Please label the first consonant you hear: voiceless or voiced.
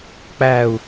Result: voiceless